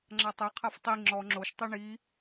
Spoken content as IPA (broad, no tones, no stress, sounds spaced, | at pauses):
ŋ͡ǁ a tˤ ɛ qʰ a f tˤ i ŋ͡ǁ ɔ ŋ͡ǁ o ʃ tˤ e ɳ i